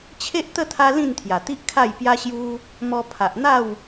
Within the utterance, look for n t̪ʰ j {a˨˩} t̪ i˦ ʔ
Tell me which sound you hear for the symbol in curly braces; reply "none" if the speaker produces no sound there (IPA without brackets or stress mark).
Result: a˨˩